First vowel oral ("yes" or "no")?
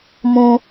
no